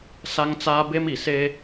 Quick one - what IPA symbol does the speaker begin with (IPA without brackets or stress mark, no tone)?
s